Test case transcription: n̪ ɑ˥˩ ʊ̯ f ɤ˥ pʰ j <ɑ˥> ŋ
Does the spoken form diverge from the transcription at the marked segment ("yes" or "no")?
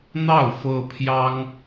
no